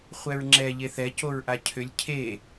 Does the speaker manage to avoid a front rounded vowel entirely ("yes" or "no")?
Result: no